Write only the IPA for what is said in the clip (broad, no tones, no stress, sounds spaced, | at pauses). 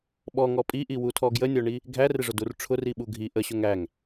ɓ ɔ ŋ ɔ pʼ i ʔ i w u tʰ ɔ ɡ j ə nʲ ɔ ɳ i | ɡʱ æ r ɪ ʐ ʊ d u r ʈ͡ʂʰ ʊ r i ɓ u ɡʱ i ʔ ə ɕ ʊ ŋ æ ŋ